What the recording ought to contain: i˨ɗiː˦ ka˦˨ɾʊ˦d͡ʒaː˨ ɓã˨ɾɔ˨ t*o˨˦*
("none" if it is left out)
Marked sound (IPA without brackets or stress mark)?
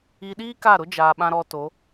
o˨˦